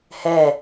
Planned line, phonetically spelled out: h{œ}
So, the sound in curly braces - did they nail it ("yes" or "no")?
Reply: no